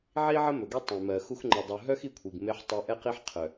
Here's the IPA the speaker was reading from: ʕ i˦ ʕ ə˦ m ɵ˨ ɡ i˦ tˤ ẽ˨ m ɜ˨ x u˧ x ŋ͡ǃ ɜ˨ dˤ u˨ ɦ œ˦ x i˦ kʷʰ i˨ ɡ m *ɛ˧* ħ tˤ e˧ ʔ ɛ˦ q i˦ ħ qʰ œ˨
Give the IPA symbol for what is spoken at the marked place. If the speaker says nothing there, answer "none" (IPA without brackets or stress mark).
e˧